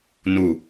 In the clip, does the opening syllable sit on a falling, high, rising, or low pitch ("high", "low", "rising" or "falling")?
low